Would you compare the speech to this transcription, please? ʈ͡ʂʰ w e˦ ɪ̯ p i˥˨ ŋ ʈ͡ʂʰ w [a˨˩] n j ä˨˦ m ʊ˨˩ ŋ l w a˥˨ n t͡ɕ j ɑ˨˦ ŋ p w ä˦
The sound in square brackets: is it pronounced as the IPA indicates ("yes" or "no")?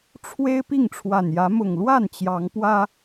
yes